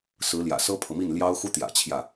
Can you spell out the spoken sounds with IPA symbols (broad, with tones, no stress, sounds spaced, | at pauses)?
s ɹ̩˧˥ l j ä̰˨˩ s ɤ˥ pʰ ɤ˨ m i˥˩ n l j ɑ˥ ʊ̯ x u˥ t̪ j ä̰˨˩ t͡ɕʰ j ä˥˩